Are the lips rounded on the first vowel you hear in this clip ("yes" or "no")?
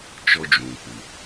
yes